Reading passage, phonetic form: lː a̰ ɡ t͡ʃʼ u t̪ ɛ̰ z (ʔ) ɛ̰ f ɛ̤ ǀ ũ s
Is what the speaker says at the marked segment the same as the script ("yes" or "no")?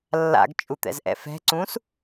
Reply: yes